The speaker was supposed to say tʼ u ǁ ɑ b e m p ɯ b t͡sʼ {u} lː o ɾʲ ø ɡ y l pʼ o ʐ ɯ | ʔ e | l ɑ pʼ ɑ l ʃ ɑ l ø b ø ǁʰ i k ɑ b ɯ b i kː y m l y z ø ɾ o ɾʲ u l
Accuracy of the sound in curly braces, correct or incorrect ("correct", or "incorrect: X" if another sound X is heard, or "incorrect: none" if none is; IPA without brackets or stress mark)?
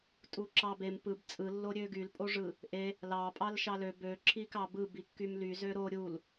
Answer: incorrect: ɯ